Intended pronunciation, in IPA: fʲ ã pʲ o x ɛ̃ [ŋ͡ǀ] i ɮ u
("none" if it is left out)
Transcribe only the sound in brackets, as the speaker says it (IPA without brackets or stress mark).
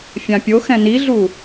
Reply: n